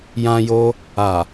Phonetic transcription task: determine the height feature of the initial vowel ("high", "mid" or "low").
low